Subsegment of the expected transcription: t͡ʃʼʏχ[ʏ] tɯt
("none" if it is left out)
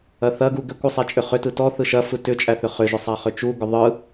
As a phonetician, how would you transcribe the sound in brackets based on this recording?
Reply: ʏ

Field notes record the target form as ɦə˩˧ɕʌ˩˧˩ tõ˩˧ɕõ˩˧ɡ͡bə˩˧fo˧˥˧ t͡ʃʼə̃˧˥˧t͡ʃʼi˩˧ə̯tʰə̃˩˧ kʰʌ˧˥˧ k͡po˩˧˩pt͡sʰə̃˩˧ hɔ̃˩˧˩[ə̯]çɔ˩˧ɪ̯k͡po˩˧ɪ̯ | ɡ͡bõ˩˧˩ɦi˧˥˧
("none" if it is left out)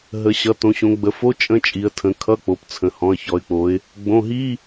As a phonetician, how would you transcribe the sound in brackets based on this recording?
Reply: ə̯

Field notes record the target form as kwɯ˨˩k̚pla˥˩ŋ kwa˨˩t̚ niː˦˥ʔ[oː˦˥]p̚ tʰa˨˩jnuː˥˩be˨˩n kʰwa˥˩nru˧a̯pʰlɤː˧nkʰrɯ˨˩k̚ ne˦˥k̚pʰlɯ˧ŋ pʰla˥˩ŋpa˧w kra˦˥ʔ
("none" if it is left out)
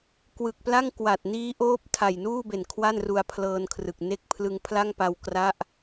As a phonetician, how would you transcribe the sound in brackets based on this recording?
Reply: oː˦˥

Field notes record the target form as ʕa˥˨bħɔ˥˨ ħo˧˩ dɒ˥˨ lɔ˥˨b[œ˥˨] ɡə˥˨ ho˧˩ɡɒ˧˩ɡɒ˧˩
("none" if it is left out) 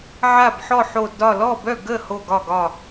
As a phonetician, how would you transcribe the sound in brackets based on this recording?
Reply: œ˥˨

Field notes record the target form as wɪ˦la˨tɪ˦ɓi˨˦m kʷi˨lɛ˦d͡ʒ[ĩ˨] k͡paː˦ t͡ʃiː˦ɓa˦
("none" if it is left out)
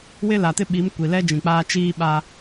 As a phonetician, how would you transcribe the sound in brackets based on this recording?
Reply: ĩ˨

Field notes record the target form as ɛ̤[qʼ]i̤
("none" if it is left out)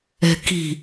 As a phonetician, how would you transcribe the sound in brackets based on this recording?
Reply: k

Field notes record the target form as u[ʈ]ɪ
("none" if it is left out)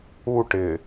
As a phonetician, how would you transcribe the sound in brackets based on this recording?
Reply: ʈ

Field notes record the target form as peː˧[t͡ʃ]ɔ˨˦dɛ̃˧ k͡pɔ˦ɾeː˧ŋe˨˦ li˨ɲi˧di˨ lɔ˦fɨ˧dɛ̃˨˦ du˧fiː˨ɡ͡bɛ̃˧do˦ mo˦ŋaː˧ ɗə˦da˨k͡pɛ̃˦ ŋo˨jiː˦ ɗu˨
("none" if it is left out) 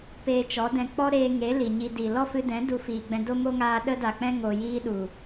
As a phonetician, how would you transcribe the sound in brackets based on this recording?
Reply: t͡ʃ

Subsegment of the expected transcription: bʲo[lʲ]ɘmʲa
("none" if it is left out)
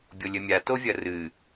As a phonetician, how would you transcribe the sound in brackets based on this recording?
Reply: lʲ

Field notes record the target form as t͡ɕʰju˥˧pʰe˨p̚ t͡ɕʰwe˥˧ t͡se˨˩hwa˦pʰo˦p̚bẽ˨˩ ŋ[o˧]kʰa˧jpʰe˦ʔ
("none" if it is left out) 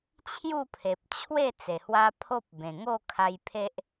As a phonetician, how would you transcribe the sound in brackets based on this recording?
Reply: o˥˧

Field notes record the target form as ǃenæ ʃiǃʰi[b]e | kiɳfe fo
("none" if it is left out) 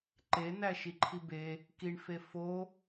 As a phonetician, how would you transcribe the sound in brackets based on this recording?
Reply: b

